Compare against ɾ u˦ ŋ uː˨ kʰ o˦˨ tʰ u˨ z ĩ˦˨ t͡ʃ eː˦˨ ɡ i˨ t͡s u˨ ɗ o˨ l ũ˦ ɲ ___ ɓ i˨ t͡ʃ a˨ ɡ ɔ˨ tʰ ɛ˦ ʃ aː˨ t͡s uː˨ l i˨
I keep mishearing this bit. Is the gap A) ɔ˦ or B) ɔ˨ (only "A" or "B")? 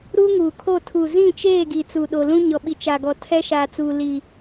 B